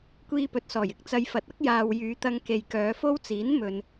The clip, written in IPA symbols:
kʷiː˧pɵ˨t̚sɔː˨˩j ɪ˨k̚t͡sɐ˨j fɐ˨t̚ ɐ˥k̚jaː˨w jyː˨˧t̪ɐ˧ŋke˨j kœː˨˧fo˥wt͡siː˨˥n mɵ˨n

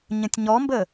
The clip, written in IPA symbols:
ɲə̃tʲɲɔmbə

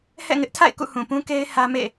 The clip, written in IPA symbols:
hɛ̰˦˨ŋɪ˦ʔtʰa̰˦˨ɪ̯ kṵ˦˨hũ˨pũ˦ke˦ɪ̯ hä˦mḛ˦˨

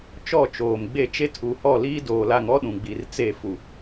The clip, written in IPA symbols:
t͡ʃɔ˦˨t͡ʃoː˨mɡ͡be˦˨ t͡ʃe˦tʰu˨hɔ˦˨ liː˦doː˨la˨ŋɔ˦ ɗũ˨ɡ͡bi˨rt͡se˦˨ fu˨

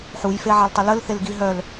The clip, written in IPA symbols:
ħujfeʕaltˤə ləlθelɡi ɦœl

